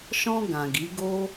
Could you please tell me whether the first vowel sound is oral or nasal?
nasal